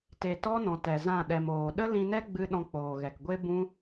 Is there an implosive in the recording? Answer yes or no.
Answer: yes